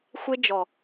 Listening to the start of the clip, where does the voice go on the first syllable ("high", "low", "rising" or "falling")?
high